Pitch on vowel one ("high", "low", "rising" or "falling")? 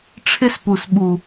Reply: high